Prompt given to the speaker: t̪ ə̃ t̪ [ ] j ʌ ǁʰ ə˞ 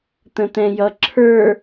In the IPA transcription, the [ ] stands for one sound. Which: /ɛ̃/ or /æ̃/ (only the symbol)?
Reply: ɛ̃